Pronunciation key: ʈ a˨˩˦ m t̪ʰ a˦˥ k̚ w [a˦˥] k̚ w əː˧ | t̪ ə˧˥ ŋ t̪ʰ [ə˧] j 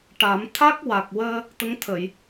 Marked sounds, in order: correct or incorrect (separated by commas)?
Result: incorrect, incorrect